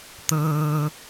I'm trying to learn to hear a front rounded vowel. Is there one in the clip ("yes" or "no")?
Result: no